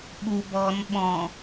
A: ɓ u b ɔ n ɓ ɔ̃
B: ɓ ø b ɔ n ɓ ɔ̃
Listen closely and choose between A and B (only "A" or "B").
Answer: A